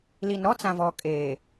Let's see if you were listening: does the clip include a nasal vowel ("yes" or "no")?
yes